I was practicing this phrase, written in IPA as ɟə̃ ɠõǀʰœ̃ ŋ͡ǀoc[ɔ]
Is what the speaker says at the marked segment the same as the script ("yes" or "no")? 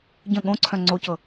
no